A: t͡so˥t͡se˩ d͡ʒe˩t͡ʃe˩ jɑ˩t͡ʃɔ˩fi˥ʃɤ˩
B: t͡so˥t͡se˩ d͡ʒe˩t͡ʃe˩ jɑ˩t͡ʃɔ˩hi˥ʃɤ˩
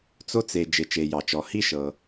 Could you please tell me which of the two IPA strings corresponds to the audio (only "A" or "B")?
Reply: B